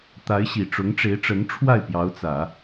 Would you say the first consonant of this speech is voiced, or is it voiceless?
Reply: voiceless